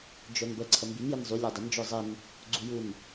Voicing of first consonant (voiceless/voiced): voiced